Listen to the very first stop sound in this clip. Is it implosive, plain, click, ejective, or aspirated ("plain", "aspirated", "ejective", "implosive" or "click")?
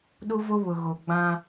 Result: implosive